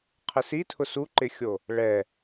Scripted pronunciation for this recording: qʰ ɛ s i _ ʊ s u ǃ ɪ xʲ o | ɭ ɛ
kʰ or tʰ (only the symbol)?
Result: tʰ